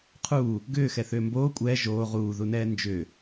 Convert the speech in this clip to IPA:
qʰ uː | ɡ ʏː x ɛ θ ʏː m b oː kʷʼ ɛː ʒ oː ʁ uː ð u n ɛː n d͡ʒ ʏː

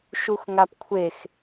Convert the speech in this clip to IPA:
ʃ u x ŋ a p kʷʰ e x

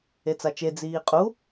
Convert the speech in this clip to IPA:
e t͡s a t͡ʃ e d͡z iː qʼ u

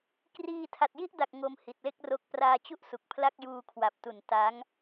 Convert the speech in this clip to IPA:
k r iː˧ tʰ a˨˩ t̚ j i˥˩ ʔ d a˨˩ k̚ ŋ o˧ m h i˨˩ t̚ l e˥˩ k̚ r o˦˥ k̚ p r aː˧ t͡ɕ u˥˩ ʔ s u˨˩ k̚ pʰ l a˥˩ k̚ j uː˧ kʰ w a˨˩ p̚ t u˨˩ n t a˦˥ ŋ

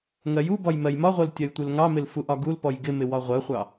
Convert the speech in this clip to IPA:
ŋ ɜ j u b ɒ j m ɜ j m ɒ ʁʷ ɜ l tʲ ɜ j tʷ ɪ l ŋ ɑ m ɪ l f u ʔ ɒ ɡ u l p ɔ j ɡ ɪ m ɪ w ɒ ʁʷ ɜ χʷ ɑ

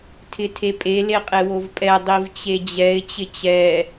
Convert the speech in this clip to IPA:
tʰ ɪ tʰ e pʼ e l e qʼ e w o v pʼ ɛ dˤ i v t͡ɕ e d͡ʑ ɛ ɪ̯ t͡ɕ ɪ t͡ɕ ɛ

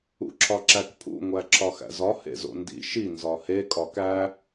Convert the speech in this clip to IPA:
ṵ ǁʰ ɒ ǁ æ k pʰ ṵ ŋʷ æ ǁʰ ɒ x æ̰ z ɒ h ḛ z o̰ n d ḭ ʃ i n z ɒ h e kʼ ɒ k æ

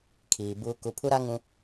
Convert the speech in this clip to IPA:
kʰ iː˨ b uː˦ k u˦ pʰ u˦ ɾ a˦ ŋ ũ˦

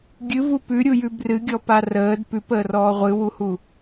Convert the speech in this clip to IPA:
ɡʲ ɨ v u p ʉ ɾʲ u j ʉ b r ɨ ɡʲ ɔ p a r əː d p ʉ p əː r ɔː ʁʷ ɨ w u h u

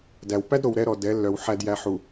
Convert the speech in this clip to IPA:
d æ˨ w p æ˦ d ɾ o˨ w ɾ ɛ˦ ɾ ɔ˨ d ɛ˨˦ lː œ˨ w ħ æ˨ d j æ˨ ħ u˨

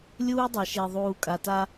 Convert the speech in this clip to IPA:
lʲ uː˦ dˤ a˨ ʃ e˨ ðˤ uː˨ kʼ a˨ t a˦

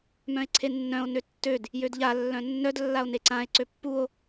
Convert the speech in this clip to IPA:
m œ̃ e̯ ǀʰ e nː œ̃ o̯ n ø tː ø d | j ø d ʎ a lː œ̃ nː œ d lː a o̯ n e ǀ ã e̯ ǀ ø pː u o̯

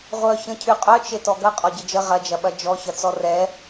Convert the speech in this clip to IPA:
ʁʷ œ ç ə̃ cʰ y qʼ œ t͡ʃ e t ɔ ɡ ɐ qʼ ɔ ɟ ə d͡ʒ ə ʁ ɐ d͡ʒ ɐ ɓ ɐ d͡ʒ ɔ ç ɐ t͡s ɔ r ɛ

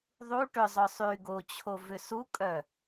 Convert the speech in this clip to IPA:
ðˤ u ʈ ʏ zˤ œ sˤ y ɡ o t͡ɕʰ o v ʏ s u kʼ œ

